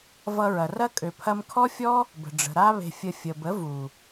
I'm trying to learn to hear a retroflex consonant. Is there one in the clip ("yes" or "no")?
yes